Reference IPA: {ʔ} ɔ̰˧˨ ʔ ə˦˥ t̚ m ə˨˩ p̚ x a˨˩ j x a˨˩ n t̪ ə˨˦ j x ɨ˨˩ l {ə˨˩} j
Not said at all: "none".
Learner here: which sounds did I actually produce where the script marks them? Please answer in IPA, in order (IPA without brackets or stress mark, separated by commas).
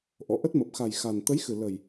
ʔ, ə˨˩